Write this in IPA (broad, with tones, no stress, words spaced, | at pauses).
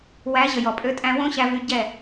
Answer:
wæ˨˦ ʑə˨jɔ˨pʼø˧tʼæ̃˧ wõ˦ɕæ˧vy˧ ɟɛ˦˨